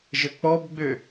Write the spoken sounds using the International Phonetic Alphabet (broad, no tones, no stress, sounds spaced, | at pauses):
ʒ ə k͡p ɔ b ɡ͡b ø